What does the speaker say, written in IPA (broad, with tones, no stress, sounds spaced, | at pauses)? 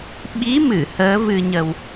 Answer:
ɓ i˨˦ m ɨ˧˩ h əː˨˦ v ɨ˧ ɲ ə˧ w